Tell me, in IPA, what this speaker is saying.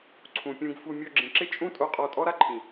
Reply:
ǀʰ ũ˨ pʲ ũ˧ ɡ f u˧ mʲ o˧ ɡ͡ǁ ĩ˨ ǁ ɪ˦ t͡ʃʼ ũ˦ tʼ o˧ qʼ ɔ˧ tʼ ɔ˦ ɾ a˦ ǃʰ ĩ˨

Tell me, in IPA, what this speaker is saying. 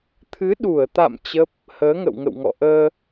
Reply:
t̪ʰ ɨ˨˦ ɗ u˧˩ ə̯ t̪ a̰˧˨ m t͡ɕ ə˦˥ p̚ | h əː˨˦ ŋ ə̰˧˨ w ŋ ə̰˧˨ w ŋ ɔ̰˧˨ ʔ əː˧

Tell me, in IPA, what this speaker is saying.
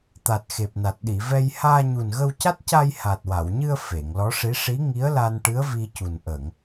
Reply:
t̪ a˨˩ t̚ x e˨˩ p̚ n a˨˩ t̚ ɗ i˨˩˨ v ɛ˧ j h aː˧ ɲ u˨˩ n ɣ ə˧ w c a˦˥ t̚ c a˧ j h aː˨˩ t̚ w a˨˩˨ w ɲ ɨ˧ ə̯ f e˨˩˨ ŋ l ɔ˧˥ ʂ i˧˥ ʂ i˧˥ ŋ i˧˥ ə̯ l a˧ n ʈ ɨ˧˥ ə̯ v i˧ c u˨˩ n ʔ ə˨˩˨ ŋ

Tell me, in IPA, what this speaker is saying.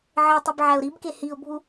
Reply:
ʕ e tˤ i b ʕ æ ʊ̯ ɾ i b k e h i ʊ̯ bʱ u

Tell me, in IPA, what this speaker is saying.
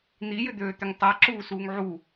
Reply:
n̪ i j ʏ d̪ øː t̪ ʏ ŋ tˤ a ǁ uː s uː ŋ ʕ u

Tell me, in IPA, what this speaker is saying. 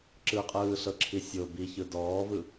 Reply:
ǁ ɯ qʼ ɯː ɬ ɤ ǁʰ i sʲ o b i ç ɯ d ɔː v ɯ

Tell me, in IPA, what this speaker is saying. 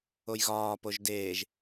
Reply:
o j ɣ ɒː p o ʒ d eː ʒ

